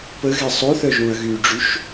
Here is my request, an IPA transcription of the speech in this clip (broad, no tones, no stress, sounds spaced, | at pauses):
p ə ɣ ɛ sˤ o θ œ ʒ ũ ɐ̯ ɣ y ɖ͡ʐ y ʃ